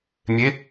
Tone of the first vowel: rising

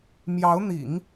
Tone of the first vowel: rising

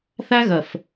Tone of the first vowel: high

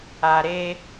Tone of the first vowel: low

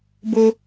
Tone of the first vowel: high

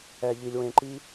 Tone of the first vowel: low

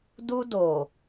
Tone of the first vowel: high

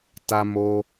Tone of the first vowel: high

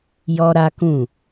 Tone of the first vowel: high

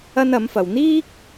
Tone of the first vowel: high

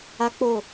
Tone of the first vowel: high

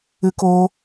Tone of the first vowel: high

